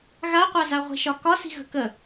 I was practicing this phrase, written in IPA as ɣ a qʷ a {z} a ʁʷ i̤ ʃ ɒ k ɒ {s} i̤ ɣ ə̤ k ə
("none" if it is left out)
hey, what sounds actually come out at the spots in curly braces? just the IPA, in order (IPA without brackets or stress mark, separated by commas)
z, s